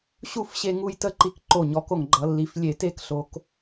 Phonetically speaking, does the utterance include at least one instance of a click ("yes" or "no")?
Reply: yes